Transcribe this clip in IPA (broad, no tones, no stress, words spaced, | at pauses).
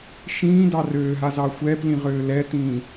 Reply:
ʃĩːdɑ røːɦazɑ xʷɛːplĩʁøː lɛtĩː